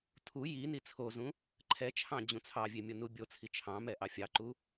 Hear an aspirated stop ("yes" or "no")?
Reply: yes